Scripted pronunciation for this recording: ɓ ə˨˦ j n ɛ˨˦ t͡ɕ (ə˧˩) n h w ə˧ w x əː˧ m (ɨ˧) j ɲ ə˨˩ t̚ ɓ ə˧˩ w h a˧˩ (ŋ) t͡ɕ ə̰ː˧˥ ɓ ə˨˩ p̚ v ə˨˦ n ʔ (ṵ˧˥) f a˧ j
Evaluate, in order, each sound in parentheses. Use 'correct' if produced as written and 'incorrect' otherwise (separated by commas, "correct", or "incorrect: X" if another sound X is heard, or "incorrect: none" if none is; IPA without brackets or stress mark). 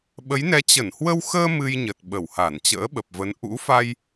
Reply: correct, correct, incorrect: n, correct